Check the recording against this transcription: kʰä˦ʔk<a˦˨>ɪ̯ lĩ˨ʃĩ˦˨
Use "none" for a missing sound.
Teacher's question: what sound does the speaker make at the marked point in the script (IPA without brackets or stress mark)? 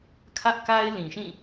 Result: a˦